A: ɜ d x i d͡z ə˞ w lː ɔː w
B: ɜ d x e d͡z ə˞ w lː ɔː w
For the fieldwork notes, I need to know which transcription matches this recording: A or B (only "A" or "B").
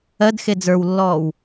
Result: B